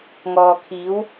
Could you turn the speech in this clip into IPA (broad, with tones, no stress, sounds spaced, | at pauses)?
ŋ ɔː˨ kʰ iː˨˥ w